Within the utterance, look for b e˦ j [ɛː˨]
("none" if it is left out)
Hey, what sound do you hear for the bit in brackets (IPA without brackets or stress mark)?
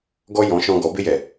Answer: ɛ˨